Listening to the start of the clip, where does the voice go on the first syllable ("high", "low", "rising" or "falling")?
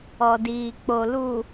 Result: low